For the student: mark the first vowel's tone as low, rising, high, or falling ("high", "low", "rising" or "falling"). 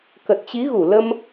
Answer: low